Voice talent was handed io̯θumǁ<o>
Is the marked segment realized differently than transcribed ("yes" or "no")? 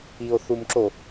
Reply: no